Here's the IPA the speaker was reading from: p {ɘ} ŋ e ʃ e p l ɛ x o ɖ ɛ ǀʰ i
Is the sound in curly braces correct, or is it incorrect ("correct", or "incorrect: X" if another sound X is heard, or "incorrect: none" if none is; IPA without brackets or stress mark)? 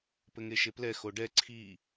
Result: correct